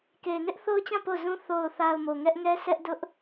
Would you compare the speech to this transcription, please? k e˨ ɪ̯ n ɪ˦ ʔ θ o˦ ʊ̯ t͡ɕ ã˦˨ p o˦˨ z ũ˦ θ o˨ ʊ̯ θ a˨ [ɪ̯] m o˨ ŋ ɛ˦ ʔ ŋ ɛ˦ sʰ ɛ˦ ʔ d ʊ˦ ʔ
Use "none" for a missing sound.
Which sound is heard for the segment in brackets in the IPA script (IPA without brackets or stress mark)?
ʊ̯